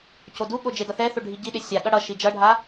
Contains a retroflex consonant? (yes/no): yes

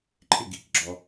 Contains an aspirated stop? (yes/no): yes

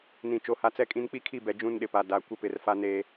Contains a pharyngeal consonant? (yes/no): no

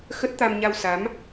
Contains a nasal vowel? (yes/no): no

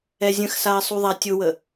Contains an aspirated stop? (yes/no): no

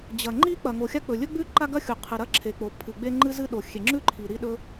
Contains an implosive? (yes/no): yes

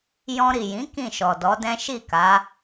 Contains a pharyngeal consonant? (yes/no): no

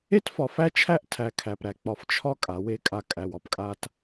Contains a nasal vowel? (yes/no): no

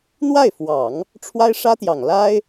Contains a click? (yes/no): no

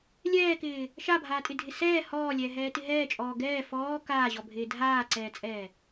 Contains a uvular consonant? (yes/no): no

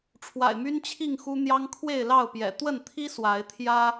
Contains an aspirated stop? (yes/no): yes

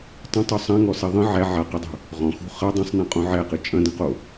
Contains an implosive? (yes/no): no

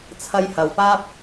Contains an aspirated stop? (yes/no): yes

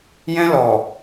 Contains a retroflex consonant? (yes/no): no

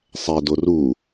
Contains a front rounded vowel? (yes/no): no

